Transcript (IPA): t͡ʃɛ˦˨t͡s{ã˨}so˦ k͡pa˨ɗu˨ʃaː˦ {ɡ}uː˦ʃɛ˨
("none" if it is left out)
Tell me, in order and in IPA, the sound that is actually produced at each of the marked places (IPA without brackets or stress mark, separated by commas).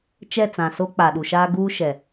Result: ã˨, ɡ